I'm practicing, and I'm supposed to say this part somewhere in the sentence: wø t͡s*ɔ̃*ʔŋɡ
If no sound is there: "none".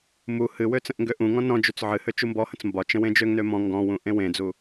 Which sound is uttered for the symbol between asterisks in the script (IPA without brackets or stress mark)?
ə̃